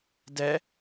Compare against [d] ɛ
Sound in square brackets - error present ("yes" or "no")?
no